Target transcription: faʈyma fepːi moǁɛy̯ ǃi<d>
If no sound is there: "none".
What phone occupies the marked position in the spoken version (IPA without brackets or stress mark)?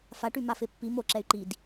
d